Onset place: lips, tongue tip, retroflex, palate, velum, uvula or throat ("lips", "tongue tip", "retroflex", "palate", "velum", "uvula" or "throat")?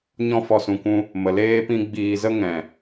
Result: palate